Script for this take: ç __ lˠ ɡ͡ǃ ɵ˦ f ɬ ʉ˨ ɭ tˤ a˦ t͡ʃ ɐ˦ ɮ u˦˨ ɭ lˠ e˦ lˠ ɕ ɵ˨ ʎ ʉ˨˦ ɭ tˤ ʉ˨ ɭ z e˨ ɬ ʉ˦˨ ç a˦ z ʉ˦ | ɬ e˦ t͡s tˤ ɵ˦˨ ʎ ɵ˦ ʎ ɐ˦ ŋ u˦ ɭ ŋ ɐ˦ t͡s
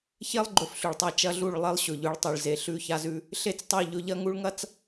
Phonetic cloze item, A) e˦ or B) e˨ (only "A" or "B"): A